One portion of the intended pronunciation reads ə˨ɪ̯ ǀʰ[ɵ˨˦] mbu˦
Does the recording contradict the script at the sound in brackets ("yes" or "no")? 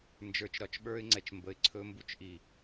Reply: yes